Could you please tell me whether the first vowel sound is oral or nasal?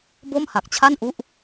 oral